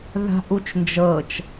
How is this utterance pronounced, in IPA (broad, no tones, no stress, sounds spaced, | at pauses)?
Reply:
ð a̤ ʔ u t͡ʃ n d͡ʒ ɤ t͡ʃ